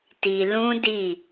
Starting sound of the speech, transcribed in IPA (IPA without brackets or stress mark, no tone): t